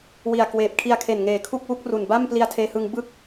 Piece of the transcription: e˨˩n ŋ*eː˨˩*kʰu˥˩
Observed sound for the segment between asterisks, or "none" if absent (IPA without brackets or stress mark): eː˨˩